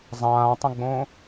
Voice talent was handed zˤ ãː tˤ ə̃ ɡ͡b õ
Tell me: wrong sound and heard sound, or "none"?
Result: none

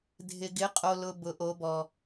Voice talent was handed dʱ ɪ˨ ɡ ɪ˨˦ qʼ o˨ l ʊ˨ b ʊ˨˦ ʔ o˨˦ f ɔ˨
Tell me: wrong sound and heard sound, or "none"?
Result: f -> b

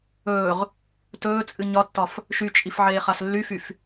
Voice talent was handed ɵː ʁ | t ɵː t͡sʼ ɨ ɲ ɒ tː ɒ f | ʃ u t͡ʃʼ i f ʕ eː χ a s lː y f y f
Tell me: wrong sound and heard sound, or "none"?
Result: u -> y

